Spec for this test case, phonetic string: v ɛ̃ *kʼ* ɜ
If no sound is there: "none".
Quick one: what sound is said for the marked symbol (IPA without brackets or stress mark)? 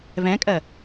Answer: kʼ